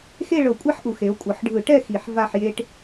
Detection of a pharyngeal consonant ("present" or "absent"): present